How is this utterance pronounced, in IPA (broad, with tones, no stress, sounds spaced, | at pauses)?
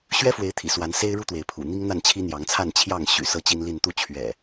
ɕ ɥ ɛ˦ f w e˨˦ ɪ̯ t̪ʰ ḭ˨˩ s w a˨˦ n s e˦ ɪ̯ ɻ u˦ t̪ w e˨˦ ɪ̯ pʰ ṵ˨˩ n̪ i˦ ŋ n̪ a˥˨ n t͡ɕʰ i˦ n̪ j ɑ˨˦ ŋ t͡sʰ a˥˨ n t͡ɕʰ j ɑ˥˨ ŋ ɕ y̰˨˩ s ɤ˦ t͡ɕ i˦ n l i˥˨ n t̪ u˥˨ t͡ɕʰ ɥ ɛ̰˨˩